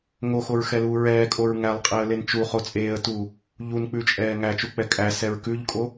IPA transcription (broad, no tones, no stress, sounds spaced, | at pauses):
ŋ o x o ɹ x ɛ l uː ɹ ɛː kʼ o ɹ ŋ æ lˠ qʼ e ə̯ l e n t͡ʃ u χ o t͡sʼ eː ə̯ t uː | ʎ u n k͡p ʉ t͡ʃʼ ɛː ŋ æ t͡ʃ u k͡p ɛ kʼ æ s ɛ ɹ k ʉ ʎ kʼ o